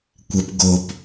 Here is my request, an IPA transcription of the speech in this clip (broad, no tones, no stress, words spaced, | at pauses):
kʷɐp ɡop